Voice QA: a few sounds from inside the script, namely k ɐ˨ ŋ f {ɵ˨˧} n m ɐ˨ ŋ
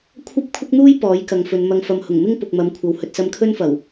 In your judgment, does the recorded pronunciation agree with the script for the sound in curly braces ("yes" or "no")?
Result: yes